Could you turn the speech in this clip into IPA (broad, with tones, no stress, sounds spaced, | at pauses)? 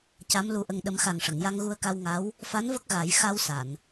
c a˧˥ m l u˧ ʔ ə˧ ŋ ɗ ə˨˩˦ m x a˨˩ ŋ ʂ ə˨˩˨ ŋ j a˧ ŋ ɣ u˧ ə̯ k a˧ w ŋ a˧˥ w | f a˧˥ n v ə˦˥ k̚ ɣ a˨˩˦ j x a˧ w s a˨˩˨ n